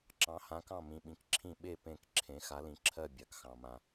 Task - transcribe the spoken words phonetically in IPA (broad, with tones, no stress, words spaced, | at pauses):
ǁɑ̃˨˦hã˨˦kɑ̃˦˨mĩ˨ ɓĩ˨˦kǁʰĩ˦˨ ɓe˦˨ pẽ˦˨kǁʰẽ˨˦ xa˨˦lĩ˨ǁʰɜ˦˨ bʲa˨k xɑ̃˨mã˨